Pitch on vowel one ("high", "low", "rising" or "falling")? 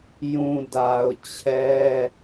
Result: low